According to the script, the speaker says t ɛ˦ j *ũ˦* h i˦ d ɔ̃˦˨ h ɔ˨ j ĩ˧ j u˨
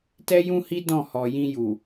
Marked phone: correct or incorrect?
correct